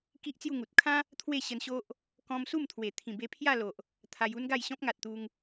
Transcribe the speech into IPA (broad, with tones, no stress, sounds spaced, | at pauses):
k i˦ ʔ t͡s j u˥˧ ŋ u˨ t̚ kʰ ã˦ | t̪ʰ w e˥˧ ɕ ə˧ n ɕ o˦ ʔ | k ɔ̃˧ m s u˥˧ m t̪ʰ w e˨˩ t̪ʰ ĩ˨˩ b e˧ pʰ j a˥˧ l o˨ ʔ | t̪ʰ a˧ j u˦ n ɡ a˥˧ j ɕ ɔ̃˦ p̚ ŋ a˨ t̚ t̪ u˧ ŋ